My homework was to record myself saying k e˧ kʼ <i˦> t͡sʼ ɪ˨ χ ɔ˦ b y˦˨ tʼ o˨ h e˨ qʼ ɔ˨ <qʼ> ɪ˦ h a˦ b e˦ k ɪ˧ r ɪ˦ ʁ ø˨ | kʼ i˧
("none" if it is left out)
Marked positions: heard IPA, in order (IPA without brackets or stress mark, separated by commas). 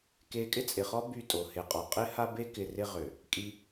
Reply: ɪ˦, qʼ